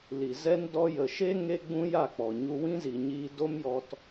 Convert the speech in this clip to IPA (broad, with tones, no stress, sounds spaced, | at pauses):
l i˨ z ɛ˦ n d ɔ˧ j ə˨ ʃ e˦ ŋ e˧ ɡ͡b ũ˧ j a˦˨ k͡p ɔ˨ ɲ u˧ w ĩ˦ z i˨ ɲ iː˧ d o˦ m j ɔ˧ t